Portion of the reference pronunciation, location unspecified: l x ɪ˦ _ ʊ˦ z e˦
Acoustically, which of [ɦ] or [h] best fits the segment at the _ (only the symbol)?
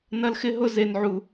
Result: ɦ